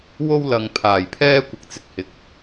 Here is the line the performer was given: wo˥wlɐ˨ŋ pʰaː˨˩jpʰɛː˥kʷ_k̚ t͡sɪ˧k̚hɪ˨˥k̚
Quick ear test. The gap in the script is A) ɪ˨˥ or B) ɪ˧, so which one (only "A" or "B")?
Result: A